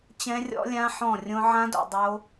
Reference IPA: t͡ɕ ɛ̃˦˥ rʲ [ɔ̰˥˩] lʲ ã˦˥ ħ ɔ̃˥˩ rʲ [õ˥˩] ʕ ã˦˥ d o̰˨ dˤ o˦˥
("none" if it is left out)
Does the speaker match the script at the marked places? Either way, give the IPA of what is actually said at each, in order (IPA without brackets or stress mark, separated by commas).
ɔ̰˦˥, õ˦˥